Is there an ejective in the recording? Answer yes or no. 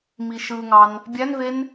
no